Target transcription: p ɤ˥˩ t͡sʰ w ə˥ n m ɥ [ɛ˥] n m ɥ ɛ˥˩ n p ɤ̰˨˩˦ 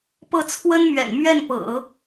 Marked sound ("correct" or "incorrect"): incorrect